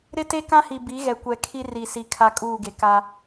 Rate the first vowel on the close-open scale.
close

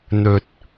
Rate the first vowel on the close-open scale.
mid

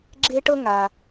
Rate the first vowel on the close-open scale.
mid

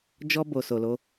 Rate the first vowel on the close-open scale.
mid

